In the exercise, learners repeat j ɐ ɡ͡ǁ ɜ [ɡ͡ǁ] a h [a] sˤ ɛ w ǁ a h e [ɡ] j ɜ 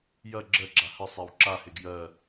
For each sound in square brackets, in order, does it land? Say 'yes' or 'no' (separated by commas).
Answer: yes, no, yes